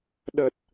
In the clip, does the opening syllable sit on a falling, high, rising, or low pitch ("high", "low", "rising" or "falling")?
low